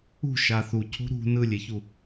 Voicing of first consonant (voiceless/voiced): voiceless